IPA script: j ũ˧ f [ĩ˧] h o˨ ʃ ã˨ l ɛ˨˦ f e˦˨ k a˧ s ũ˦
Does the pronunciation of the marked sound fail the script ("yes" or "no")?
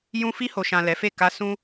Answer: yes